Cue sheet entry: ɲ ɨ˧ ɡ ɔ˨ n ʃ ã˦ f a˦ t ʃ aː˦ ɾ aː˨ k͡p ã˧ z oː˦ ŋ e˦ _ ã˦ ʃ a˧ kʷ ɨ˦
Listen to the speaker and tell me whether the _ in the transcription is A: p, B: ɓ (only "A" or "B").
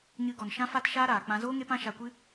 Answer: A